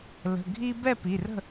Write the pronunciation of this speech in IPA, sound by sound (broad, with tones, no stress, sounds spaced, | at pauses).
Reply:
l ə̤˩˧˩ ɡʱ i˦ b ɛ˥˨ p i˩˧˩ r ə̤˥˨